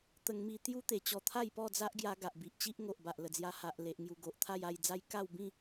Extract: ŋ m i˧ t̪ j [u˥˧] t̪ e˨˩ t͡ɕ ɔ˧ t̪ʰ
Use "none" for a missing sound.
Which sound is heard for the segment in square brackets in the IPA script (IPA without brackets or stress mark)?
u˦